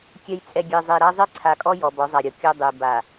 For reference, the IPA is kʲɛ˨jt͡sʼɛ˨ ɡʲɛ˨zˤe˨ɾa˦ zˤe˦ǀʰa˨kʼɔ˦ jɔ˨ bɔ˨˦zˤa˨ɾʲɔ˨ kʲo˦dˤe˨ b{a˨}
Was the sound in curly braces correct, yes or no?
yes